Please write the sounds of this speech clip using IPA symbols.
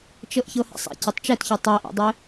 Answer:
t͡ʃɤʔçɤhɛ̰sˤɛ̰ cetˤt͡ʃɛtçɯ tˤɛʔo̰dˤe

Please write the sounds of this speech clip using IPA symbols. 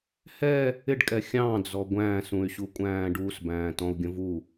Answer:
hɛ | ɪɖkʼɛ xʲɑ̃d͡zɔ ɡʷæ̃ːs ũy̯ɕukʷʼæ̃ːɖus bæ̃ːtɔ̃u̯ɡʲə̃vu

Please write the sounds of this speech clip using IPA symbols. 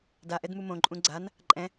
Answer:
daʔɛdmu mõǃʼũ ɡ͡ǀan | ǃʼɛ̃

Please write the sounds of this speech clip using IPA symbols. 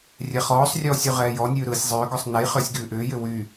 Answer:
rʲɛχɔːsˤrʲɔːsʲ ʉʁɛːjɔnʲʉː ɾɯːsʲzˤʏːɡɔsˤ nɛj χʏːsʲɡʉːʔʏːjʏ wy

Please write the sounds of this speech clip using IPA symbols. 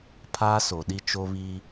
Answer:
pʰaː˦so˨ɗi˦ t͡ʃo˦βiː˦

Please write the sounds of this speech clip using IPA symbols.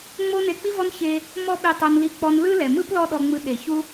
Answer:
ŋ͡mo˦ne˧k͡pi˦vɔ˦n çe˦ | mɔ˦ɓi˧tˤo˧nli˧ k͡pɔ˧nlɯ˦ lɛ˨mɯ˦p lɔ˦ɗɔ˧ŋ͡mɯ˧ ɗe˨ çu˦

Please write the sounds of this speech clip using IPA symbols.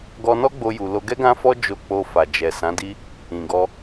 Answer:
ɡɔ˧nɔ˦ɡ͡bo˧ ju˧ lo˧ɡɛ˦ɡã˦fɔ˦ d͡ʒo˧k͡po˧ fa˨d͡ʒɛ˨ sã˨˦di˦ | ĩ˨ɡɔ˧

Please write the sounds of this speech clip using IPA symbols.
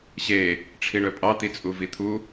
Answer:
ɕe | ʈ͡ʂʰiɳœpʼɑ t̪it͡sʼuvit̪ʰu

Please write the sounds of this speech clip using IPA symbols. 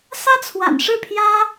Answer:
sä˥t͡sʰwa̰˨˩nʂɻ̩˥˩pʰjä˥

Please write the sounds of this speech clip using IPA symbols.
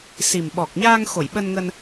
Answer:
si˨˩mɓɔ˨˩k̚ɲaː˧ŋ xo˧˩jɓə˧nŋə˧n

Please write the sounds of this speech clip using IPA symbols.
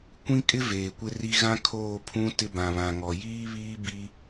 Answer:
kʷĩ˦kʼɪ˦ veː˨kʷɪ˦ri˦ ɣã˦ kʰoː˦˨pʰũ˦ tɪ˦ bã˨βã˨ŋɔ˨ jiː˦ βiː˦ bi˦

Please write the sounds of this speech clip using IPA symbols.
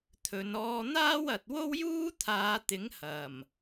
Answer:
t̪ʰɵ˨˧n ɔː˧n̪aː˥wɐ˨t̚wo˥w juː˥t̪ʰaː˨˧t̪ɪ˨˥ŋ hɐ˨˩m

